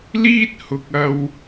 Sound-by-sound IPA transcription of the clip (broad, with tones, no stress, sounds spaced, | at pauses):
l iː˥ t̚ h ʊ˨ k̚ ɐ˧ w